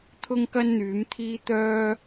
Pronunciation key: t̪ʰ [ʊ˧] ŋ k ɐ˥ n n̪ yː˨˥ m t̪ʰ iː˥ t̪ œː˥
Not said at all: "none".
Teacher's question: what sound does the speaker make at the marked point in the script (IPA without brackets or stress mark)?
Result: ʊ˥